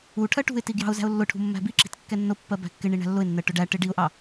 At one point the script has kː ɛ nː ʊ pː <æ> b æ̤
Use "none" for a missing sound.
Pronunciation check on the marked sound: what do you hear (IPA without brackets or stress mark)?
ɜ